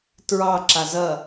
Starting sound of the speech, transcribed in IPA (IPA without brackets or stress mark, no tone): t